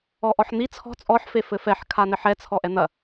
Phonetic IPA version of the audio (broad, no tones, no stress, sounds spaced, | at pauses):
ɔ ʔ ɔ ħ n̪ i t͡sʰ ɔ̤ t͡sʼ ɔ ħ f e f ɘ f ɛ ħ kʰ a n ɘ ħ ɛ t͡sʰ ɔ ʔ ɛ n̪ ɐ